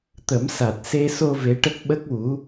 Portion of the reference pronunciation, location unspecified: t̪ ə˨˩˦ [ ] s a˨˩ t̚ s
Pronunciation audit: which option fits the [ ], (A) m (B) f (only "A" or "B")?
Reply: A